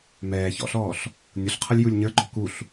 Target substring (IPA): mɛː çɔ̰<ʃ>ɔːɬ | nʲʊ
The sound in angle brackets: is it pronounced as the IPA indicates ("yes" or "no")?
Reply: no